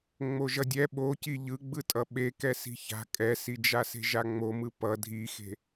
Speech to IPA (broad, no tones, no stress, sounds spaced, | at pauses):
ŋ͡m o ʒ ʌ dʲ ɛ ɓ o c i ʎ ɯ ɡ͡b ɯ tʼ ʌ ɓ e k ɛ s i̤ ç a̤ kʼ ɛ s i d͡ʒ a s e̤ ʒ a ŋ͡m o m ɯ p ʌ dʱ i x e̤